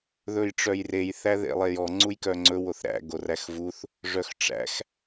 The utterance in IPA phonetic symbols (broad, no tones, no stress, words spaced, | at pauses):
ðɵjʈ͡ʂœjrej θæðḛlˠejɔ ŋ͡ǀujkœŋ͡ǀɵ woθɾæ̰ ɡoræxvuθ | ʐœxʈ͡ʂæ̰x